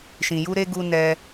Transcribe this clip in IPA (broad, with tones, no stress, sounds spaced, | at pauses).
ʃ ĩ˨ j u˧ ɾ e˧ ɡ u˧ n ɛ˧